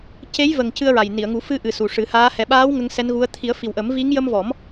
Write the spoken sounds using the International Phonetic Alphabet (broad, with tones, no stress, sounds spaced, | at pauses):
c e˧˥ j v ə˨˩ ŋ c ɨ˧ ə̯ ɹ a˨˩ j n i˨˩˨ ə̯ ŋ u˨˩˦ f ɨ˧ ʔ ɨ˨˩ s u˨˩ ʂ ɨ˨˩˦ h aː˧˥ h ɛ˨˩ ɓ aː˧˥ w ŋ ə˧˥ ŋ s ɛ˧˥ n ɣ u˧˥ ə̯ t̪ʰ i˨˩˦ ə̯ f i˨˩ w ʔ ə˨˩˦ m v i˧˥ ŋ j ə˧ m v ɔ˨˩˦ m